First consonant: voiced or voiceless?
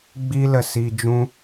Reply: voiced